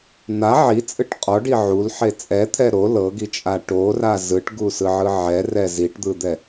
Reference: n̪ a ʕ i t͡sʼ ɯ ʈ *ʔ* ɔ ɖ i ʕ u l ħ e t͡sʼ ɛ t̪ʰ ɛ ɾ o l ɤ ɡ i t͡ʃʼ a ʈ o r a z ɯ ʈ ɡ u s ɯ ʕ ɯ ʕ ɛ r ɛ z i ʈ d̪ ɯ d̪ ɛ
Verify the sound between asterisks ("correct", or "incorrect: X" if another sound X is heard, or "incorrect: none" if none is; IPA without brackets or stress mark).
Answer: incorrect: qʼ